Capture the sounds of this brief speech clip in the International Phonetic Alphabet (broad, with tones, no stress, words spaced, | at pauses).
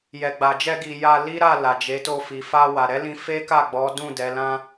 jɛ˨ɡ͡ba˨d͡ʒɛ˧ ɡi˧ ja˧li˦ɾa˦˨ la˨d͡ʒe˨˦to˦˨ fi˨fa˧ wa˨ ɾɛ˨˦lĩ˧ fe˦ka˦˨ɡ͡bɔ˨˦ dũ˦˨ dɛ˨˦ lã˧